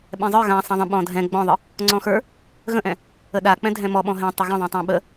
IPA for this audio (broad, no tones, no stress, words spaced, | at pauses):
ɓɛ̃zˤə˞ ɣã sˤãðˤə̃ ɓɔ̃dʱɛ̃ ɡ͡bɔ̃ðˤə | ŋ͡ǀɔ̃xə˞ | ɣə̃ʔɛ̃ | əɗa k͡pɛ̃dʱɛ̃mɔɓɔ̃ ɦɛ̃tˤə ɣə̃ðˤɛ̃tˤã ɓə